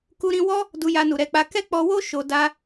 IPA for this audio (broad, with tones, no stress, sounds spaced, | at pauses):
k u˧ ɾ ĩ˧ w ɔ˦ | d u˧ j a˧ n u˨ ɾ ɛ˧ k͡p a˧ k ɛ˦ k͡p ɔ˧ w o˦ ʃ o˧ d a˦